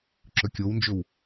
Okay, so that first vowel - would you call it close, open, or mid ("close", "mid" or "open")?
mid